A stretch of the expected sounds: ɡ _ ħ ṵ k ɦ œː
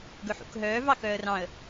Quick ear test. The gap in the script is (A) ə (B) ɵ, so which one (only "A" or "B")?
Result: B